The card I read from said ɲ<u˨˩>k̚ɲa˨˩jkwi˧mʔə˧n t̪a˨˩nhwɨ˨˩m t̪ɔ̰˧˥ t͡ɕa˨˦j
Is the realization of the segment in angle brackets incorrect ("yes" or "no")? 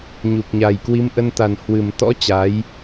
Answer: no